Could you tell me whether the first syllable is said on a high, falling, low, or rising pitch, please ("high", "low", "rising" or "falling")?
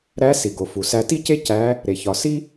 rising